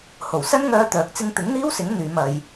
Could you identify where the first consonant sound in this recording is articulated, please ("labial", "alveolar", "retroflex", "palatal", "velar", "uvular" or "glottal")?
glottal